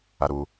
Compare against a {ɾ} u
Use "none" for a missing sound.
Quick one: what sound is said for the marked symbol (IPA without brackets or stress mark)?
ɾ